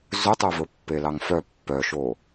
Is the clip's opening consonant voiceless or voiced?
voiced